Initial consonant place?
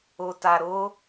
alveolar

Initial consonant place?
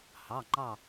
glottal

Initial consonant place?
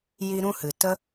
palatal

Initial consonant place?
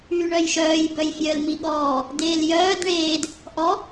retroflex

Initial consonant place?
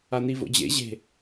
alveolar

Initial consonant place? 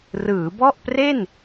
alveolar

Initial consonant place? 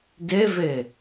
alveolar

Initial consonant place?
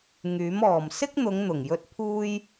velar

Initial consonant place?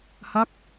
glottal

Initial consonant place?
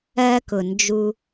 velar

